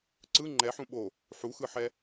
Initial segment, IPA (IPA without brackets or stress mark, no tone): ǀ